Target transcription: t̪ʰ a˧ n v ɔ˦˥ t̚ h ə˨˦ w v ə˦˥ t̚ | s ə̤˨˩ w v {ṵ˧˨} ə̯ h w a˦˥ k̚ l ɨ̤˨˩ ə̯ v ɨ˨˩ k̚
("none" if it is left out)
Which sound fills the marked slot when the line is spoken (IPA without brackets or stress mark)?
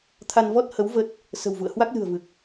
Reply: ṵ˧˨